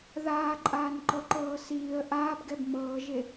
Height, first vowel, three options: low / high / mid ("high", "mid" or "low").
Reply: low